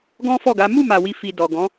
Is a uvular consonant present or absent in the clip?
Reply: absent